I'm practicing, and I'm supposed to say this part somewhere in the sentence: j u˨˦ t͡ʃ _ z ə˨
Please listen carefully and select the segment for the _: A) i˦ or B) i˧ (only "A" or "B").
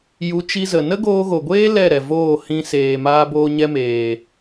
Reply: B